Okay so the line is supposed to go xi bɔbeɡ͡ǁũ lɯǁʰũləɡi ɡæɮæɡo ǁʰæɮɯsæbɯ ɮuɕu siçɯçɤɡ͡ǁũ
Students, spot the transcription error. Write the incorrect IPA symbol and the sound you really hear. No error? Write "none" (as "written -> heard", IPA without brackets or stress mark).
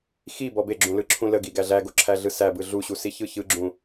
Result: ɤ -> ɯ